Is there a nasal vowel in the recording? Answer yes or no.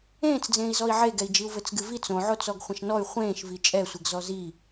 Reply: yes